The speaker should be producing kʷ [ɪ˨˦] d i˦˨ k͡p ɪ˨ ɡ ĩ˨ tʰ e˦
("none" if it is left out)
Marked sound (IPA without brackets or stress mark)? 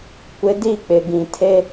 ɪ˨˦